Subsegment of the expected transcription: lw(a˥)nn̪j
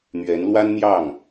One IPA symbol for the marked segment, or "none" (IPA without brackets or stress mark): a˥